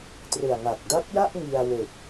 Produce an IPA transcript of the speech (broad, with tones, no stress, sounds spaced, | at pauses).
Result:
t r ɯ˨˩ a̯ ŋ a˨˩ k̚ d a˦˥ p̚ j a˥˩ ʔ ŋ i˧ a̯ w e˨˩ k̚